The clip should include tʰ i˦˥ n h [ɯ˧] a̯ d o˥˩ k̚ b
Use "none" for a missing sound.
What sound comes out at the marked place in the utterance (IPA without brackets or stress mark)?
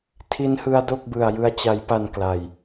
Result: ɯ˧